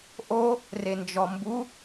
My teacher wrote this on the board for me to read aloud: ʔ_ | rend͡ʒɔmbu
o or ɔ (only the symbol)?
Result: o